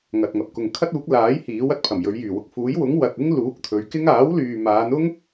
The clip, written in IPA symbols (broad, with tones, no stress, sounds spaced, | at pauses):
ŋ ɐ˨ t̚ ŋ ɐ˨ p̚ k ʊ˨ ŋ kʰ ɐ˥ t̚ uː˨˥ k̚ l aː˨˥ j h iː˨˥ w ɐ˨ t̚ pʰ ɐ˨˩ m j ɵ˨˧ ɥ j yː˨˩ w ʊ˨ k̚ f uː˨˥ j w ʊ˨˥ ŋ w ɐ˨ t̚ ɪ˥ ŋ l uː˨˥ k̚ t̪ʰ ɵ˨˧ ɥ k ɪ˥ ŋ aː˨˥ w l yː˨ m aː˨˧ n ʊ˥ ŋ